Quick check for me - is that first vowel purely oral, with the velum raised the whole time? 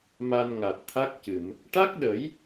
yes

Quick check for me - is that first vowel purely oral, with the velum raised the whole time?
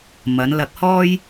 yes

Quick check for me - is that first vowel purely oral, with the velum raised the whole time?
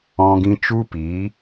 no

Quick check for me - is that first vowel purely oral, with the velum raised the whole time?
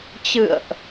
yes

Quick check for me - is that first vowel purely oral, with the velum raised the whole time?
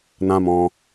no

